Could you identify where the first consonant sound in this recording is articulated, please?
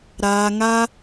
alveolar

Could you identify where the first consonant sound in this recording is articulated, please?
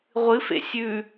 uvular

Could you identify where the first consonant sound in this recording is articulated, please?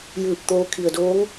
palatal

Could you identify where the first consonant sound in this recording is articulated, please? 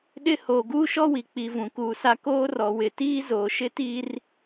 alveolar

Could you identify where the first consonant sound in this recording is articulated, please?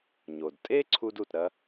palatal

